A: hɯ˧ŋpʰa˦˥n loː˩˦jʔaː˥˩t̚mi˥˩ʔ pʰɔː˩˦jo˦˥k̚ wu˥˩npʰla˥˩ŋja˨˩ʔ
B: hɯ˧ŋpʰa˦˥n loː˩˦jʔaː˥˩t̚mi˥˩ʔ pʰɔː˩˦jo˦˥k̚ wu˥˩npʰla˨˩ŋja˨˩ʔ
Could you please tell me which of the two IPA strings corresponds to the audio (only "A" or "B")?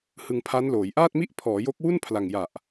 B